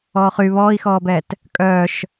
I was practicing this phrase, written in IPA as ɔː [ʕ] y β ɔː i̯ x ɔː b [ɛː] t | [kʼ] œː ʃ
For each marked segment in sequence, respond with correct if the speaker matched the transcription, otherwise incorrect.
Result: incorrect, correct, correct

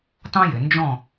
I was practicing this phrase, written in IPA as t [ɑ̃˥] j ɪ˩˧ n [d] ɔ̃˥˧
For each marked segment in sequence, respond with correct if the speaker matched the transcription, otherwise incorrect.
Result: correct, incorrect

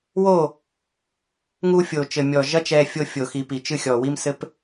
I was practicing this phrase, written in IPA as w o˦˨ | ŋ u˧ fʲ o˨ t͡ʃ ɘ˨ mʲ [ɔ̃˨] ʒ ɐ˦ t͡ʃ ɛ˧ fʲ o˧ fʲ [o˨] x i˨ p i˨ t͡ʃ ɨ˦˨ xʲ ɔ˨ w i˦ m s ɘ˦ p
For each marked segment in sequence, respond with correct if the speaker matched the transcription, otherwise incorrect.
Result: incorrect, correct

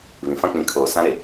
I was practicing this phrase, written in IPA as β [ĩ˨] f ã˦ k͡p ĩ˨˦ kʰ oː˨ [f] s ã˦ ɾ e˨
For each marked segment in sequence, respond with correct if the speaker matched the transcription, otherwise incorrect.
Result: correct, incorrect

